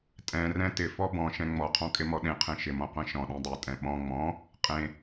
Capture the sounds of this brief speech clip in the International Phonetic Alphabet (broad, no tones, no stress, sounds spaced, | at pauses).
tʼ ɛ̃ r ɛ̃ t ɪ f ɔ b ɔ̃ ʃ ɛ̃ ŋ͡m ɔ qʰ ɔ̃ kʼ ɪ m ɔ ɗ ẽ qʰ ẽ ʃ ɪ m ɔ̃ qʷ ɛ̃ ʃ ɔ̃ ɗ ẽ dˤ e tʼ ɛ̃ ɓ ɔ̃ ŋ͡m ɔ̃ | qʼ ẽ